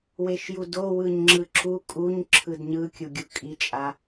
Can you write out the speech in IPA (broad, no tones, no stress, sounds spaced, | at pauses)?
w e ʃ j u d o w ɯ ɲ ŋ͡ǁ ɯ ǁ u kʼ u ɲ ǁʰ ɯ d ɲ ɯ kʲ u ɡʲ u kʼ i t͡ʃʼ a